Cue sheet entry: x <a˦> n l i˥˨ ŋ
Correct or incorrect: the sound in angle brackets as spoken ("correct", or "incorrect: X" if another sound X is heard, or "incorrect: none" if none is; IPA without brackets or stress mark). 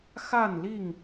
incorrect: a˥˨